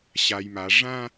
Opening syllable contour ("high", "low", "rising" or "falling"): low